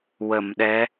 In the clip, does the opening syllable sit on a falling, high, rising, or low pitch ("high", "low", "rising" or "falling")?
low